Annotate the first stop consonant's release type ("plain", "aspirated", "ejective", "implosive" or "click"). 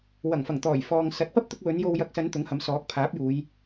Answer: plain